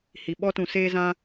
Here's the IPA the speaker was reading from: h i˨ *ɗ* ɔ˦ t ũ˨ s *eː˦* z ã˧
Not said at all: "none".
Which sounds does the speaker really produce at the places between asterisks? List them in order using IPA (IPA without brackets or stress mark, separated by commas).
ɓ, eː˦